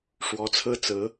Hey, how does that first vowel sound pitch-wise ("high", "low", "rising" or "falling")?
rising